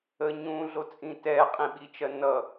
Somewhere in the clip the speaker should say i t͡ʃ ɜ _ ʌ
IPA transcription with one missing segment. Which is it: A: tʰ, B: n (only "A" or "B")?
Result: B